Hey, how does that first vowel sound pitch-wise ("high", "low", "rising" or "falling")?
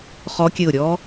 rising